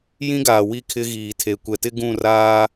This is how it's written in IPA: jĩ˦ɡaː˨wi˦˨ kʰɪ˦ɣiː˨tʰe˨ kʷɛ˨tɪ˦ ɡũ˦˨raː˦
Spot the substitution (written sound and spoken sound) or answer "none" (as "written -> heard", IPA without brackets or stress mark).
none